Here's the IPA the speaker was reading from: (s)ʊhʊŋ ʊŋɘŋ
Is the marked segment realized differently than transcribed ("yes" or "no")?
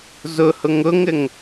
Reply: yes